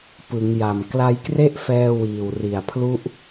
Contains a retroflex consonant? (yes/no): no